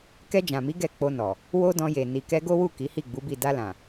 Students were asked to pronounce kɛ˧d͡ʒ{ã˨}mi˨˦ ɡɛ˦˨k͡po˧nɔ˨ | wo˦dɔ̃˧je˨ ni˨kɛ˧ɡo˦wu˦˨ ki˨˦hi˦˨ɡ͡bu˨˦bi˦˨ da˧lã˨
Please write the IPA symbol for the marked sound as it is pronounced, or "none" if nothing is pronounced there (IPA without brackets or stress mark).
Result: ã˨